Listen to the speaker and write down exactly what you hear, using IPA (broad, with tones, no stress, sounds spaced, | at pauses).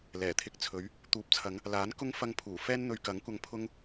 l ɛː˨˩ t̪ʰ ɪ˧ k̚ t͡sʰ ɵ˨˥ ɥ | t̪ uː˨˥ p̚ t͡sʰ ɐ˨˧ ŋ | l aː˨˥ n k ʊ˥ ŋ f ɐ˧ ŋ pʰ uː˨˩ f ɛː˥ n n̪ ɵ˧ ɥ k ɐ˨˥ ŋ kʷ ɐ˧ ŋ pʰ ʊ˥ ŋ